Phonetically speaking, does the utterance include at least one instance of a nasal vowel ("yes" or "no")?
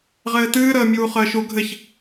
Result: no